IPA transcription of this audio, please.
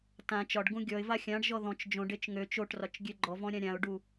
t ã t͡ʃ ɒ ɖ ɡ ũ ɡʲ ɔ ɪ̯ v a xʲ ã ɖ ʒ ɔ ð ɔ̃ t͡ʃ d͡ʒ õ ɖ e t͡ʃ ŋ ø t͡ʃ o ʈ r ɒ t͡ʃ ɡʲ ø ɡ͡ǃ ɔ v ɔ̃ ɾʲ ã ɾʲ ã ʊ̯ ɖ u

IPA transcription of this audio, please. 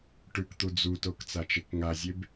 ʈ ʉ k t̪ u d͡z u t o k t͡s a t͡ʃ e k ŋ a zʲ e b

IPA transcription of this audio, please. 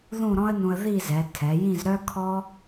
ð ũ˥˧ ɾ ɔ̃˥ ə̯ n ũ˧ ə̯ ð i˥˧ z ɛ˩˧ tʰ ɛ˩˧ j ĩ˥˧ z ɾ œ˥ kʰ ɔ˥

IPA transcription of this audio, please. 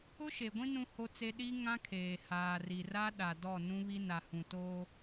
ʊ˦ ʃ e˨ ɡʷ ĩ˦ n ũ˦ h o˦ t͡s e˦ ɗ i˦ ŋ ã˦ kʰ eː˨ h aː˨ r i˨ r a˦ ɗ a˨ d ɔ˦˨ n ũ˦ β i˦ n a˨ h ũ˨ t oː˦

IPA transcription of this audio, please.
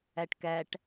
æ ʈ k æ ʈ

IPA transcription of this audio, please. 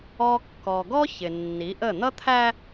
ɔ˦ kː ɔ˨ ɡ ɔ˦ ç ɪ˨ nː i˨˦ ʔ ə˦˨ n̪ ʌ˦ t̪ʰ æ˦

